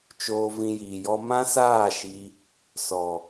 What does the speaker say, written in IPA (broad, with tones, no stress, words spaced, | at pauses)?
t͡ʃoː˧ vĩ˧jiː˨jɔ˦ mã˦saː˦˨ ʃi˧ | sɔ˨